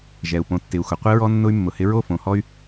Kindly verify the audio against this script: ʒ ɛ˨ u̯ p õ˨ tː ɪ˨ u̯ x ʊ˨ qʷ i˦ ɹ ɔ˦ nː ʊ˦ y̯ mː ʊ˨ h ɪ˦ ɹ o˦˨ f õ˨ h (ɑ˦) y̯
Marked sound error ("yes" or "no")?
yes